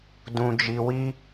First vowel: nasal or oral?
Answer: nasal